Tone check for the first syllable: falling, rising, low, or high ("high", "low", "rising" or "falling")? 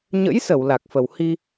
rising